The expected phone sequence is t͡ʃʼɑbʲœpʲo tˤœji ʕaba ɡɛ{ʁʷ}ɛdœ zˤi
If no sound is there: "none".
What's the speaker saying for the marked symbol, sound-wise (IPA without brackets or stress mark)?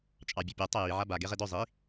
ʁ